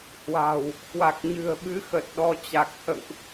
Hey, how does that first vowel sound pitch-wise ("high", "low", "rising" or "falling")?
low